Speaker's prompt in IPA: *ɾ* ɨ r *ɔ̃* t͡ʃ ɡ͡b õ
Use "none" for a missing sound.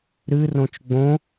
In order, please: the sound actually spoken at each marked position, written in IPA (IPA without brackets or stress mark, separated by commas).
ɾ, õ